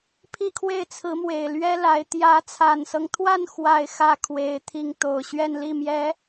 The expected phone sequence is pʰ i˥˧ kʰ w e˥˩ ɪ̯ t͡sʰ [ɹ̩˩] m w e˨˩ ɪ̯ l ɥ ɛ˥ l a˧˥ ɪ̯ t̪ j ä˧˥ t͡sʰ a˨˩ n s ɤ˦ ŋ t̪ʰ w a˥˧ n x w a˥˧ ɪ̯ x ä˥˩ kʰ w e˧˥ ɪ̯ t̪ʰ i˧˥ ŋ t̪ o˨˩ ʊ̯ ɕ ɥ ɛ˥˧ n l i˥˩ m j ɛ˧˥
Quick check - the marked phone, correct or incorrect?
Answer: incorrect: ɹ̩˧˥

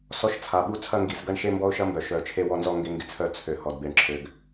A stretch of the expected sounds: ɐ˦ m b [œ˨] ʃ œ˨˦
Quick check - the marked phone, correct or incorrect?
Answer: correct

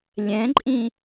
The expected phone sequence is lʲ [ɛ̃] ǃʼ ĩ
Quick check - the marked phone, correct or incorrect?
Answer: correct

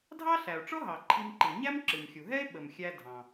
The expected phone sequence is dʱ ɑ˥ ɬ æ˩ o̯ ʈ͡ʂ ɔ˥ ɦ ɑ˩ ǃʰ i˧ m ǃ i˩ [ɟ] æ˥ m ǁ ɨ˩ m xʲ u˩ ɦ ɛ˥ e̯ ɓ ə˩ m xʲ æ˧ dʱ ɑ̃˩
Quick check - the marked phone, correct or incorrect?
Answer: incorrect: ɲ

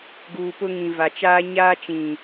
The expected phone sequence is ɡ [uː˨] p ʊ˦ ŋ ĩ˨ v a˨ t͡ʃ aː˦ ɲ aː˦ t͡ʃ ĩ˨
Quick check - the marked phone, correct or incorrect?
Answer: correct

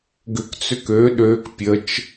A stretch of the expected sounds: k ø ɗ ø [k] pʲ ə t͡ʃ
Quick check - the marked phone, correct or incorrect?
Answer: correct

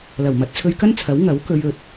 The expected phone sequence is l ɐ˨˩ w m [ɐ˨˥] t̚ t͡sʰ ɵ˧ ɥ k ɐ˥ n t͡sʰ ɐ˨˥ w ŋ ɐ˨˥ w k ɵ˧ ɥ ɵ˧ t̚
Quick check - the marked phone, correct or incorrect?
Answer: correct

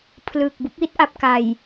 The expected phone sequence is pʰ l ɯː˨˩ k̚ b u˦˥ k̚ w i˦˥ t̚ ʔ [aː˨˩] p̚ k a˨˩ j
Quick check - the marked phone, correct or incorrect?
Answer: incorrect: a˨˩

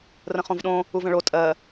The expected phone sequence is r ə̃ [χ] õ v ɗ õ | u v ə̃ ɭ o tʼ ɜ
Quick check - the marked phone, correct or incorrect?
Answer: correct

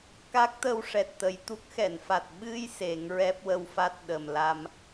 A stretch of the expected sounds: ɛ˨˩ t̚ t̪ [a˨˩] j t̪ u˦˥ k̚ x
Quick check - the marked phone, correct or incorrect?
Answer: incorrect: ə˨˩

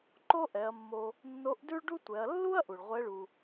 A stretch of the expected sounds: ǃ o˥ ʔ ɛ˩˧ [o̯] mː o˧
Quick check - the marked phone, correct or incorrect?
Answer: incorrect: ɐ̯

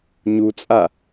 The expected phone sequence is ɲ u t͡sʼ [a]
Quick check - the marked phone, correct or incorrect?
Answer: correct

